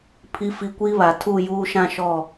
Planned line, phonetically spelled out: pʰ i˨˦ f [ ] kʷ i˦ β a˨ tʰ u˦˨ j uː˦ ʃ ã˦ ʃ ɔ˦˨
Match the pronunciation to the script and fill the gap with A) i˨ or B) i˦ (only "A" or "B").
A